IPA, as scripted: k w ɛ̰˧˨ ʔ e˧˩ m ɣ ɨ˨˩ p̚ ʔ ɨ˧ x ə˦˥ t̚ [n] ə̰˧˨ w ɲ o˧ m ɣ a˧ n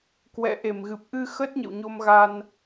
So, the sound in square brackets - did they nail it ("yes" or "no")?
no